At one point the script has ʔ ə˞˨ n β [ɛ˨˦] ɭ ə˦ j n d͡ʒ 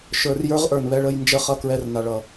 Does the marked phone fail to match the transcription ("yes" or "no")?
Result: yes